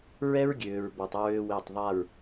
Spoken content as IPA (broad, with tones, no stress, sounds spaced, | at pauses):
ɹ ɛ˦ ɹ ɡʲ øː˨ ɹ b ɔ˨ tˤ ɹ ø˦ w e˦˨ tˤ ðˤ a˦˨ ɹ